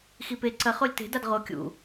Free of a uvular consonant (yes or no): no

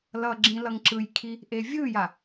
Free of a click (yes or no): no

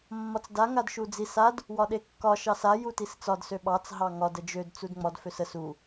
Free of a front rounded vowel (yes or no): no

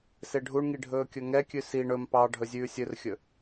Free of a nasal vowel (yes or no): yes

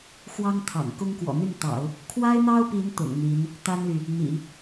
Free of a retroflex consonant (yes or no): yes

